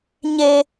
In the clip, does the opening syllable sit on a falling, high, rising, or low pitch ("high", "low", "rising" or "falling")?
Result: high